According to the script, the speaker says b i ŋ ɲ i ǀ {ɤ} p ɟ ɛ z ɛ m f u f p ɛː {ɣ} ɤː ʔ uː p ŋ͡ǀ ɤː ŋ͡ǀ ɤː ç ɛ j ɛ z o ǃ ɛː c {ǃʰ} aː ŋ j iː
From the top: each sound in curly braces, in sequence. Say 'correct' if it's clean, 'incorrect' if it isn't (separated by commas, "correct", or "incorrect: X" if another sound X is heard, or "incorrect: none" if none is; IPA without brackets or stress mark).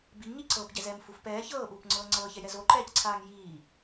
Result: correct, incorrect: ç, incorrect: ǀʰ